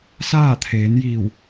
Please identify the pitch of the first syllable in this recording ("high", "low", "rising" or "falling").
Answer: falling